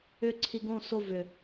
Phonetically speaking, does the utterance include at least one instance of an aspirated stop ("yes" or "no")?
yes